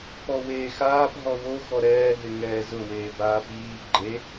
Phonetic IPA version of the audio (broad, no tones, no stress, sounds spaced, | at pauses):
p ɔ w eː x aː p ɦ ɔ w o x ɔ ɾ ɛː ɦ ɪ ŋ ɛː z ʊ w eː b aː p iː ɡ͡ǃ e